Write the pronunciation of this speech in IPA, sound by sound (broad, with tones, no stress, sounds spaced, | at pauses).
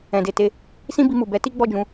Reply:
ɛ̃˨ d e˨ t e˨˦ | s ĩ˦ b i˧ m u˨ b ɛ˨˦ t i˦ ɡ͡b ɔ˦˨ d͡ʒ ũ˧